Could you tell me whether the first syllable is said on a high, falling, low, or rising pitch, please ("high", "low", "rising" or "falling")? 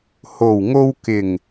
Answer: low